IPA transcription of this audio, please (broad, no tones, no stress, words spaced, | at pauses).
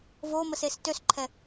voməses tøsǃʰɛ